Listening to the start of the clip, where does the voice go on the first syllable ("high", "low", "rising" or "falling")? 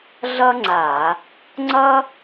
high